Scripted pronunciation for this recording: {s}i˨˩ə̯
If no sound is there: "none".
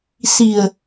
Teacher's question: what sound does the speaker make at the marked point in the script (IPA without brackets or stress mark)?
s